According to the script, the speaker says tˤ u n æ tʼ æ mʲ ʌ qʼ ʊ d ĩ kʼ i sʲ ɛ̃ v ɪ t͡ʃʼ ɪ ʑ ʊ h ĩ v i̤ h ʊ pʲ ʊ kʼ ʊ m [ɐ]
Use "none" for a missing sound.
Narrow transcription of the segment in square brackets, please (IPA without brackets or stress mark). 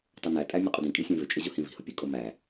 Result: æ